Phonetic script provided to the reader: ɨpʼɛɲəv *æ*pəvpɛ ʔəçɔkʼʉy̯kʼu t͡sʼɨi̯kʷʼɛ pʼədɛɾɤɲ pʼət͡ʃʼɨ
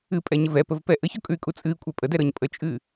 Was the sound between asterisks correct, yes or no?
no